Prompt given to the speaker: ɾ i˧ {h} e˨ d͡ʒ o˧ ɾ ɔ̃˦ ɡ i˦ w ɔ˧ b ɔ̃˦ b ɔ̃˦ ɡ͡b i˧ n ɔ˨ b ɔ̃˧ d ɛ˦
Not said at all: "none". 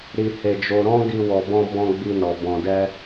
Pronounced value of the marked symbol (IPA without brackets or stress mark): h